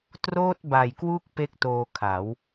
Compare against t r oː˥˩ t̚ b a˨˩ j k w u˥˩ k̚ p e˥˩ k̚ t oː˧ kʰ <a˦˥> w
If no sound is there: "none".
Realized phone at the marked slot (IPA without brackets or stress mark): a˩˦